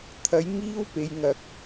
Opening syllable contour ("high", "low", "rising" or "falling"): rising